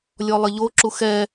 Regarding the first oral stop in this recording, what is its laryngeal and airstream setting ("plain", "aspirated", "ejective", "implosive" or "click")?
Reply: click